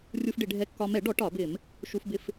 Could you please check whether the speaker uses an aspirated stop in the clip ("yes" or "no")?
no